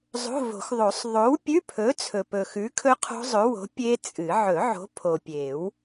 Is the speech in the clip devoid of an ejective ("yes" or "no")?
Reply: no